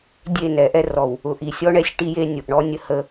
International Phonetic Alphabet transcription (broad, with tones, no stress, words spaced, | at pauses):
dʲe˦˨nɛ˨˦ʔɛ˦ rɔ˨w | ʊ˨ʔi˨ sʲɔ˦ɳɛ˦sʲ ʈi˦je˦ nʲʊ˨ʔ ɳɔ˦nʲə˦hə˦